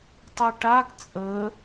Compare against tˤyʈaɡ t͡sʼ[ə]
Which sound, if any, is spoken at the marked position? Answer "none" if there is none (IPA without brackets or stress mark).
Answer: ə